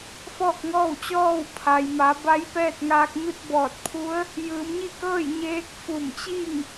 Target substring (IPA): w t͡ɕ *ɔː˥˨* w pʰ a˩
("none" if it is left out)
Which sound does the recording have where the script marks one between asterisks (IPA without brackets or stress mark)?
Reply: ɔː˥˨